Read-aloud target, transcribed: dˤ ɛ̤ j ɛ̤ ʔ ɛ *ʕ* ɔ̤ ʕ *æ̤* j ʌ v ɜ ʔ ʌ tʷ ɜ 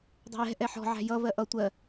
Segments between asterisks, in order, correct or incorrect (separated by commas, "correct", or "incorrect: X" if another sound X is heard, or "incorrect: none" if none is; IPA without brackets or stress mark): incorrect: ħ, correct